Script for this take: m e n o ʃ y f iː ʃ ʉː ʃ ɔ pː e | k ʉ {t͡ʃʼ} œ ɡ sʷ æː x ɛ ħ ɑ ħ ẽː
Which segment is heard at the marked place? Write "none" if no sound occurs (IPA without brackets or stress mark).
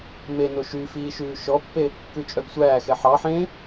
t͡ʃʼ